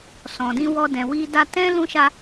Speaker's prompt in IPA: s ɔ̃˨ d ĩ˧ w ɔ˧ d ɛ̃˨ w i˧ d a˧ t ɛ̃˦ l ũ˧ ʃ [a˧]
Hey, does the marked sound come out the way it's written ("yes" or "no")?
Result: yes